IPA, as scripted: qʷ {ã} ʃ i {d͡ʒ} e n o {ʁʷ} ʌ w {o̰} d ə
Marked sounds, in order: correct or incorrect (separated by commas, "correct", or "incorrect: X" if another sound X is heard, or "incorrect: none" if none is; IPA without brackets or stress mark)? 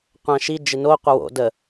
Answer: correct, correct, incorrect: qʷ, correct